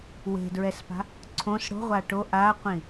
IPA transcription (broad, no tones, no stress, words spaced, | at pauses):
we̤dɹɛspa̤ | ǀʰõs ɽo̤ʁʷa ʈo ʔaqʷĩ